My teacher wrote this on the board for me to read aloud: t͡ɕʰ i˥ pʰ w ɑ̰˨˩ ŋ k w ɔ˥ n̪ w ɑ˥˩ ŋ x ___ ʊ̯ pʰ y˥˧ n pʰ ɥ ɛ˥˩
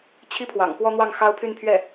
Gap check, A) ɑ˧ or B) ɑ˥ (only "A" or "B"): B